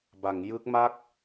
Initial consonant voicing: voiced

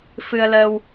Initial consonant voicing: voiceless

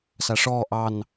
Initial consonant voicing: voiceless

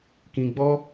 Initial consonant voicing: voiceless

